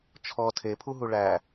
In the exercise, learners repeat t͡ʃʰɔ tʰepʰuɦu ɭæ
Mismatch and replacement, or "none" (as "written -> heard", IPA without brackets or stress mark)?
none